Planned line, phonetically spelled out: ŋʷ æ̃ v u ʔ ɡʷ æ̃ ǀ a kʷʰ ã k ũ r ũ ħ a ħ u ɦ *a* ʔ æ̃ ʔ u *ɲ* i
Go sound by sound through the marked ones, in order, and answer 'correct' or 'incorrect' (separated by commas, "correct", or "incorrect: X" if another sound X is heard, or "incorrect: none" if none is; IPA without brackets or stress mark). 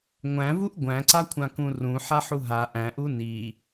correct, incorrect: n